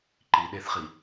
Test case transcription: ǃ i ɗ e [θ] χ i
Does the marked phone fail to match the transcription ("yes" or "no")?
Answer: no